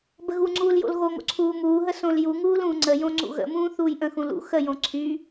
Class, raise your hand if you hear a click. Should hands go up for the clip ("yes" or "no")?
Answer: yes